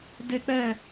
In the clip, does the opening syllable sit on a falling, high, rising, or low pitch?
high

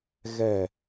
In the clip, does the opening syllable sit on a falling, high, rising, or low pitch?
falling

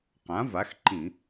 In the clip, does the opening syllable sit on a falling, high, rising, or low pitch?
rising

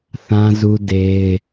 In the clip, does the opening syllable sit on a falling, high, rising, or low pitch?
high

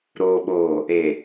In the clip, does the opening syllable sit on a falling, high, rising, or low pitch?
low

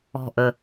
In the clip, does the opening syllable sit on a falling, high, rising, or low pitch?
low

